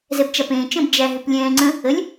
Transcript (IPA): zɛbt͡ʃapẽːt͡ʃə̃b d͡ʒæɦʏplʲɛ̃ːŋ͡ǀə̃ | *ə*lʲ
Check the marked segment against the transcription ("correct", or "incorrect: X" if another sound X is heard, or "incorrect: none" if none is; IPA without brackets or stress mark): correct